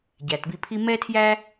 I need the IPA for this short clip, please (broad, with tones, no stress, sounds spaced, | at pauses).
ɟ æ˩ t b i˧ pʰ i˥ m ɛ˥ tʰ j æ˥